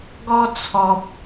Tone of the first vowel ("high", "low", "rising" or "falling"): high